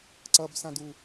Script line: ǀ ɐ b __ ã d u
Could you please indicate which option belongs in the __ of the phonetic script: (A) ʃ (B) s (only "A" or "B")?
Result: B